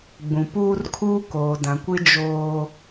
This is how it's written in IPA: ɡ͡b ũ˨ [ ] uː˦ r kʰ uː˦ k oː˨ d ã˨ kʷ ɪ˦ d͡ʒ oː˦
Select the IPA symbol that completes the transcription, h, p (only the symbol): p